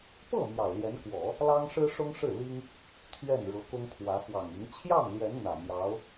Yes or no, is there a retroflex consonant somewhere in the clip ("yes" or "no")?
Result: yes